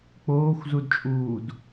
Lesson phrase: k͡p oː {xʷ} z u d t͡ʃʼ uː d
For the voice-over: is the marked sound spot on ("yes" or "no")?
yes